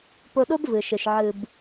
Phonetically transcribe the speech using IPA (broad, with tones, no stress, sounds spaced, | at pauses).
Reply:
p o˧ ɗ o˦ b v ɯ˨ ʃ ɯ˨ ʃ ʕ ɯ˨ b